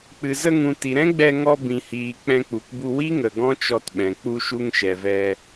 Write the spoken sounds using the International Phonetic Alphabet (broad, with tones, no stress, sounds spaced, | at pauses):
k͡p ɨ˨ z ə˧ ŋ ũ˨ t i˨ ɾ ɛ̃˦ ɡ͡b ɛ˧ ŋ ɔ˧ b ĩ˨ h iː˨ k͡p ɛ̃˧ k͡p u˨ k b u˧ w i˦ ŋ ə˨ ɡ ɔ̃˦ t͡ʃ ɔ˧ t ɓ ɛ̃˨ k͡p u˧ ʃ u˧ ŋ ʃ ɛ˨ v ɛ˧